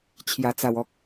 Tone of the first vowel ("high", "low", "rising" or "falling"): low